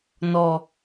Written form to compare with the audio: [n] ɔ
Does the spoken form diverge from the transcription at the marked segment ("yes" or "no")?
no